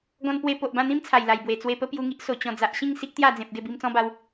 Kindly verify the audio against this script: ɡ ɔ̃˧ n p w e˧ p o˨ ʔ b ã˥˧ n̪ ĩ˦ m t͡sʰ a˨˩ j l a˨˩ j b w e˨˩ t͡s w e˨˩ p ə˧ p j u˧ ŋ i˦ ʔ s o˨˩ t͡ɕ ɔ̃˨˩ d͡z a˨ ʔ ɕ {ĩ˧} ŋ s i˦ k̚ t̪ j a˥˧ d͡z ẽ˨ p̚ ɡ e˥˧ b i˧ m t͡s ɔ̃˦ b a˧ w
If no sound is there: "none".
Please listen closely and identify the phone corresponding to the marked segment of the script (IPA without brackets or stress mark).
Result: ĩ˥˧